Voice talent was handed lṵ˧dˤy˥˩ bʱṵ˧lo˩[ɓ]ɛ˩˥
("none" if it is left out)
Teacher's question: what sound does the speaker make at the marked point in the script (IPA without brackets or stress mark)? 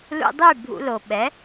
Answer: ɓ